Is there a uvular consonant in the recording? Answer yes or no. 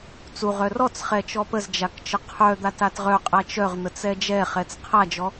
yes